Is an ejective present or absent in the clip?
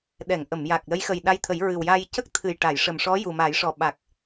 absent